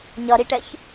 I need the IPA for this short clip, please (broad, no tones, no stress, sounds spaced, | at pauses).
ɲ ʌ ɾ i ʈ ɛ ç